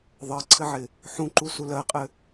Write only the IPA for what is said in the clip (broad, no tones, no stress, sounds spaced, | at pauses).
ðˤ ɜ ǀʰ ɘ ʕ ɪ | ħ ũ ǃ u s u l ɜ qʼ ɘ